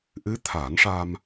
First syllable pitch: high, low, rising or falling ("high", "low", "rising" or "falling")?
rising